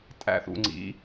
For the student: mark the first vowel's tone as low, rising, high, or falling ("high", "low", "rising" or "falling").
falling